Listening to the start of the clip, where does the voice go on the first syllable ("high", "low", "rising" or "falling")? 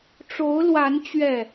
rising